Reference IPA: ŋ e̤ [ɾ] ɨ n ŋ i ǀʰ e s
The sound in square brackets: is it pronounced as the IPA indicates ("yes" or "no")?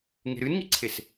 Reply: yes